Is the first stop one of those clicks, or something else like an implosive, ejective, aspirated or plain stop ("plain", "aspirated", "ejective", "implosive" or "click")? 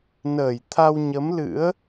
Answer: aspirated